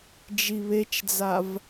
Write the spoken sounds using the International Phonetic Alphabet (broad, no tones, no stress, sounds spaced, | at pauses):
d͡ʒ i β e t͡ʃ d͡z a v